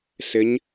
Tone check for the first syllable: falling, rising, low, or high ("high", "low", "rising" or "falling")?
rising